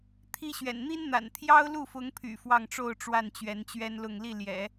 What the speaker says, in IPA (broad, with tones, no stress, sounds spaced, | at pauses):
t̪ʰ i˥ ɕ ɥ ɛ̰˨˩ n n̪ i˥ n n̪ a̰˨˩ n t̪ʰ j ɑ˥ ʊ̯ l u˥˩ f ʊ˧˥ ŋ pʰ y̰˨˩ f w ɑ˥˧ ŋ ʈ͡ʂ o˥˧ ʊ̯ ʈ͡ʂ w a˥˩ n t͡ɕ ɥ ɛ˧˥ n t͡ɕ ɥ ɛ˥ n l ʊ˥˧ ŋ l i˥˩ l j ɛ̰˨˩˦